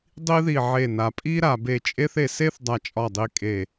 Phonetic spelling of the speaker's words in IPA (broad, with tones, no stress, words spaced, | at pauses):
dˤi˥ði˦˨ʕe˦˨ na˨pʼi˥ ɾa˨be˦˨t͡ʃʼe˥θ e˨se˥θ dˤa˦˨t͡ʃʼɒ˦˨dˤi˦˨kʼe˦˨